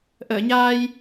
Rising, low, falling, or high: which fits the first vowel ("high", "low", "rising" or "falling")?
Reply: low